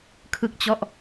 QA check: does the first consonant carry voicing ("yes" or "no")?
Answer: no